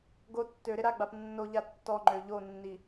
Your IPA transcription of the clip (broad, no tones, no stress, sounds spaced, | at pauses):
ɡ o tː ø ɾ ɪ ɾ a ɡ͡b a p nː o ʎ a tː ɔ ŋ͡ǃ ø ʎ o nː i